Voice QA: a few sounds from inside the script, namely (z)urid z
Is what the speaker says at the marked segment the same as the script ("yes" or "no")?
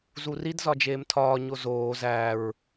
yes